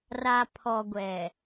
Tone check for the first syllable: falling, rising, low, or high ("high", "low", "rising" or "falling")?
low